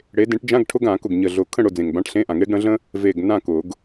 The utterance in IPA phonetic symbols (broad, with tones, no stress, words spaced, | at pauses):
ɽe˨˦ dẽ˨˦ʈd͡ʒã˧˥˧ɡʈʰʊ˧˥˧ɡ ã˨˩˦ kʊ˨˩ɡɲə˨˩ɮʊ˨˩ kʰə̃˥˨ɽʊ˥˨ d͡zẽ˨˩ŋbã˧˥˧ʈɬẽ˧˥˧ʔã˨˩˦ŋ e˨˦ɡɽə̃˨˦ɮə̃˥ | ve˨˩ɡ nã˥˨kʊ˨˩˦ɡ